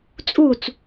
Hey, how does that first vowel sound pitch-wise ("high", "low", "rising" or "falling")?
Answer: falling